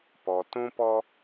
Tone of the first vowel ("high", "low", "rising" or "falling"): low